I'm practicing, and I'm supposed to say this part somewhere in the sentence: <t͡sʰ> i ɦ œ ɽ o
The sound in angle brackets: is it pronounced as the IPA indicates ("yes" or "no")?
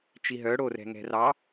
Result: no